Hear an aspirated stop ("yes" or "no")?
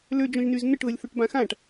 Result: no